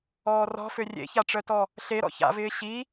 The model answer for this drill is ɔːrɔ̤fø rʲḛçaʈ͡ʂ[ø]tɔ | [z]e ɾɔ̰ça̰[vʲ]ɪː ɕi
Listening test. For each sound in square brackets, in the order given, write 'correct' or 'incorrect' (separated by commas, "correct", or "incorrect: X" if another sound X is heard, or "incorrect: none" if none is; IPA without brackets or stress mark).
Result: incorrect: œ, incorrect: ɬ, incorrect: v